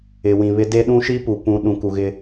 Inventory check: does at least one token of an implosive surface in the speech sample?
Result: yes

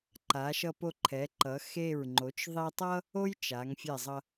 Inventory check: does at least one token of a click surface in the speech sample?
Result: yes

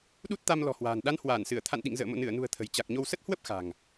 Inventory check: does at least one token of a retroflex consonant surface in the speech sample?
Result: no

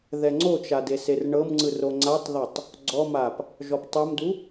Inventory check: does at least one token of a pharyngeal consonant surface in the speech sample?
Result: no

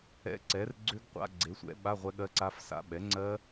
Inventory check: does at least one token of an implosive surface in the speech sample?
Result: yes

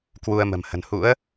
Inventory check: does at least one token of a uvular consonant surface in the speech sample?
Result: no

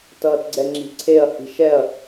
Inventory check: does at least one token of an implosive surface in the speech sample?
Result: no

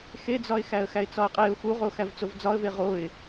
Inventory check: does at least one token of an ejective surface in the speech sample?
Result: yes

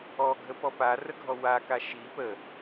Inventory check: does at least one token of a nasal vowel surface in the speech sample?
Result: no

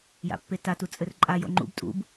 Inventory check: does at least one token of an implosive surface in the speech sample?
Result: no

